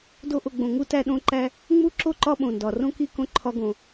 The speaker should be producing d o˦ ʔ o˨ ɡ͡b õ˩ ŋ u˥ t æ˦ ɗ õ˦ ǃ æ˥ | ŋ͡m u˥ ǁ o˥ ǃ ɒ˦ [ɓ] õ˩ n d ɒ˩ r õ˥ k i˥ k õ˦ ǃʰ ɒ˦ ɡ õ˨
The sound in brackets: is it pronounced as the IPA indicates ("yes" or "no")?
yes